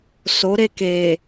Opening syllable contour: rising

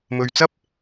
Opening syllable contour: low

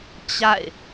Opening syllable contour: falling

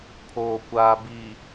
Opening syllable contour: low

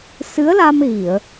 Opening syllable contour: rising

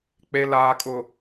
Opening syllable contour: low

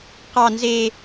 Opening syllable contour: low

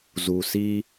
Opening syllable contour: low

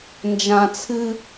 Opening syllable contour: low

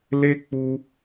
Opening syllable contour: high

